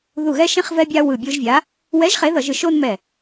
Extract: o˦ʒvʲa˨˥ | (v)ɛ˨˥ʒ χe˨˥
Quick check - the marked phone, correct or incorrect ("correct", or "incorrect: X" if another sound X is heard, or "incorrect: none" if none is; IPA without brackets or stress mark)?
incorrect: w